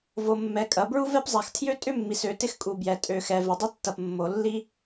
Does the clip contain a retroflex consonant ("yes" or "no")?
no